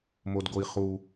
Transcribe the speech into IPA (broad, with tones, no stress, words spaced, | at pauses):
mo˦dɡo˦i̯χu˦